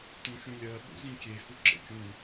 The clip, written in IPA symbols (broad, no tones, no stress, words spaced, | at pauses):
t̪ũxʲũlʲɜ ɓṵzĩkʲe huǁḛkʲũ